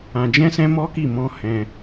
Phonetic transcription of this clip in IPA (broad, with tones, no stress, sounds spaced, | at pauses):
ã˧ d͡ʒ ɛ̃˦ s ɛ̃˦ m ɔ˦ k i˦˨ m ɔ̃˧ h ɛ̃˧